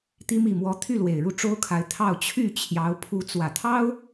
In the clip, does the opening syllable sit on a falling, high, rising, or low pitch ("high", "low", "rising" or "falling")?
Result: rising